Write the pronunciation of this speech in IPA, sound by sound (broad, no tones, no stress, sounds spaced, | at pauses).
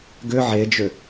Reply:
ɡ ʏ ʕ e d͡ʒ ʏ